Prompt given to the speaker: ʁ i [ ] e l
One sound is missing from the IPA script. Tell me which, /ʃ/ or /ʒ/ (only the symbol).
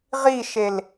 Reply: ʃ